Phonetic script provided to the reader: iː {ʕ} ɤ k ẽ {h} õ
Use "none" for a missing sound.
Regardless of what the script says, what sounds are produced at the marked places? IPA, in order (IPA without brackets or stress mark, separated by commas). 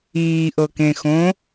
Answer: ʔ, x